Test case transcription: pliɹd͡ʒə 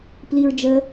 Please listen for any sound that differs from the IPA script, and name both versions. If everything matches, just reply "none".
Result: none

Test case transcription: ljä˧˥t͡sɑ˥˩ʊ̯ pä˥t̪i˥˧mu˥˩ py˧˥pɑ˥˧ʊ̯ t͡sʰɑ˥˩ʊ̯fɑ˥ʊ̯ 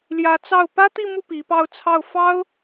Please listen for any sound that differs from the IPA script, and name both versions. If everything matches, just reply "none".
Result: y˧˥ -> i˧˥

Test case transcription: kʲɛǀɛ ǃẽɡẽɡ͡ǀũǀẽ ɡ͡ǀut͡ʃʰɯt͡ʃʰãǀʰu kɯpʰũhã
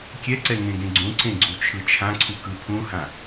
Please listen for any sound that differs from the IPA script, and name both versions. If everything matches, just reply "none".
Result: ǃ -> ŋ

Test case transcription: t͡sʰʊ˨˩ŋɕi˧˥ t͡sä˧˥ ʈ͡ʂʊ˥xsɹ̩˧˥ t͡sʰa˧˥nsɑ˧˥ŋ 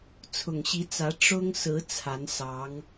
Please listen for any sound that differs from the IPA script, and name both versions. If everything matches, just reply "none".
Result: x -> ŋ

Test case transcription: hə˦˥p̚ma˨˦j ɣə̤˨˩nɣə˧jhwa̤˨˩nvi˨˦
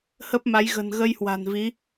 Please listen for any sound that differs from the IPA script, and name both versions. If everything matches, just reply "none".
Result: none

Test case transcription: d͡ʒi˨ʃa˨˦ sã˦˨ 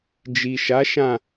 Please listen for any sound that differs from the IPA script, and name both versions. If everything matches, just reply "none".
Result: s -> ʃ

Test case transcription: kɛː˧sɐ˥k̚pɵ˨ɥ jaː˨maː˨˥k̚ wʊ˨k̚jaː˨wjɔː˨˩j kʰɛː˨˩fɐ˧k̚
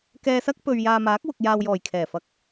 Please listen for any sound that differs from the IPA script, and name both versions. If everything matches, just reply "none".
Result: none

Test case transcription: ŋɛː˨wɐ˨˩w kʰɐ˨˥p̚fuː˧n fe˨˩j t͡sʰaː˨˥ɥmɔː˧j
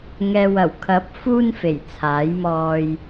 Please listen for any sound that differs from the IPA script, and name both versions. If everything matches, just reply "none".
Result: ɥ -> j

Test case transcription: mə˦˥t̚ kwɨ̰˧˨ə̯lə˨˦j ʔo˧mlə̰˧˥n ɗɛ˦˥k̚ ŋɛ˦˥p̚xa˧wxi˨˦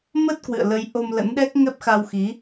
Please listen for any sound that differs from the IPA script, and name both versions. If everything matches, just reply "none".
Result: none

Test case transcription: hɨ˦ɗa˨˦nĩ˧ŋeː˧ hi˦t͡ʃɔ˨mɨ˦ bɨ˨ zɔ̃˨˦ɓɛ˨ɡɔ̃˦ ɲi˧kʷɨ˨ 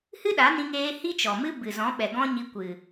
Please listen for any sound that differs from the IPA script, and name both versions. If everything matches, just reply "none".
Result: none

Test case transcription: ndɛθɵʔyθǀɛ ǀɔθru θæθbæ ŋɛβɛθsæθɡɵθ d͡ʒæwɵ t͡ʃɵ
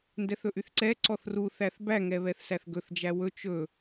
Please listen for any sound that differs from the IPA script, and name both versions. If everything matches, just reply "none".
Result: none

